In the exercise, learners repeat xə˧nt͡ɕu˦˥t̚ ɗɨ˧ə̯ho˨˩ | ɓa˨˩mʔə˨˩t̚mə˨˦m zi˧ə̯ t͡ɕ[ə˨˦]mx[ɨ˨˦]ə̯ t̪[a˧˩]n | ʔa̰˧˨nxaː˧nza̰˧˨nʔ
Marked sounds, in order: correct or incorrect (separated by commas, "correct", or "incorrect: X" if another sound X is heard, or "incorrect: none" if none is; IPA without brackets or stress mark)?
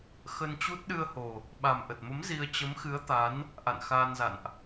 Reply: correct, correct, incorrect: a˨˦